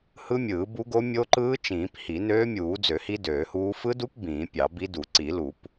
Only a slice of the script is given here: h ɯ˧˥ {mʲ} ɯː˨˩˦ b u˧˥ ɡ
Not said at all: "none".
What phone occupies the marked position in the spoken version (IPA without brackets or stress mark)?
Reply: mʲ